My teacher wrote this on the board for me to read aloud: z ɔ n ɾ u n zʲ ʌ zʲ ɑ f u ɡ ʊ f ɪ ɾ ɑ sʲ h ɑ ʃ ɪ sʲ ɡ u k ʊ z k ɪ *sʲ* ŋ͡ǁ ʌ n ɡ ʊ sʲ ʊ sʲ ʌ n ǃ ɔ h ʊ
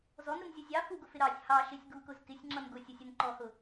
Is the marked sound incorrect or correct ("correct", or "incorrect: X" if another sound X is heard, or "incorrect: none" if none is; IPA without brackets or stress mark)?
correct